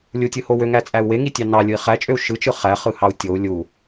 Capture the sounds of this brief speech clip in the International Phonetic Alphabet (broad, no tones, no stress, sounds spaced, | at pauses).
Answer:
lʲ u tʲ ɯ h o w ø ŋ æ t͡sʼ æ u̯ w e ŋ i tʲ ɑ n ɑ lʲ ɯ i̯ χ æ t͡ʃʼ ø u̯ ʃ ɯ t͡ʃ ɯ χ æ χ ɯ h ɑ u̯ tʲ o u̯ lʲ u